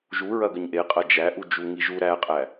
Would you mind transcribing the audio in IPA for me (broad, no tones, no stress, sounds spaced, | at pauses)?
ʒ u ɹ ɐ ɡ ə ɲ ʔ e qʼ ɐ d͡ʒ æ ʔ u d͡ʒ u ŋ i ʒ u ɾ æ qʼ æ